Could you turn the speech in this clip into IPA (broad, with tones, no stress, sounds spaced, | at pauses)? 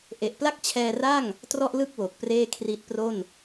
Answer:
ʔ e˨˩ ʔ p l a˥˩ k̚ t͡ɕʰ ɛː˧ r a˥˩ ŋ | t r ɔ˥˩ ʔ l ɯ˥˩ k̚ w o˨˩ k̚ p r eː˥˩ kʰ r i˦˥ t̚ p r o˥˩ n